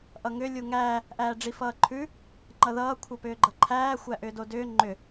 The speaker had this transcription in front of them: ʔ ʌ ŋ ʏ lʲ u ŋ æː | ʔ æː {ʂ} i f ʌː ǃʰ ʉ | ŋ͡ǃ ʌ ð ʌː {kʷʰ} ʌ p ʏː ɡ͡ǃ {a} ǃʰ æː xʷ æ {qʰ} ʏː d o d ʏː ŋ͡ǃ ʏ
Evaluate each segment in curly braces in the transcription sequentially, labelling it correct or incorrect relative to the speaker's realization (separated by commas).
incorrect, correct, incorrect, incorrect